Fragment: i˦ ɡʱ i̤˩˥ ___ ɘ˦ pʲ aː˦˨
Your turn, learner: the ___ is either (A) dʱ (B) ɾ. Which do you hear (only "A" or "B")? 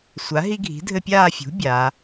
A